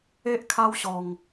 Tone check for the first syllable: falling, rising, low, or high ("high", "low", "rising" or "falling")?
high